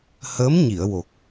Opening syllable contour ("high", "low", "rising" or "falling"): rising